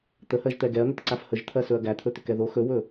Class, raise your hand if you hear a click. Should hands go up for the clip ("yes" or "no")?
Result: yes